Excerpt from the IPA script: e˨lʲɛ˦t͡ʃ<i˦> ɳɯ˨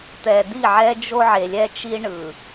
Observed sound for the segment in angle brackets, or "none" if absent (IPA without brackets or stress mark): i˦